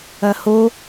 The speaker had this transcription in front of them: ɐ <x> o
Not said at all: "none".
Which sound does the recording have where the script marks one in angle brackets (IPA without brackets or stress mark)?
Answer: h